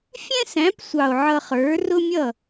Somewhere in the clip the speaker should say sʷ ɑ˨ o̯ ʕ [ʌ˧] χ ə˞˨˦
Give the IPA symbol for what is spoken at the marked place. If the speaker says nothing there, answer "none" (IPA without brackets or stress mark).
ʌ˧